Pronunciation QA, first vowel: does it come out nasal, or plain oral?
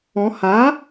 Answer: nasal